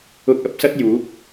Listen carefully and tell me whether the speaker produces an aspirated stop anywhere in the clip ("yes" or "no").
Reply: no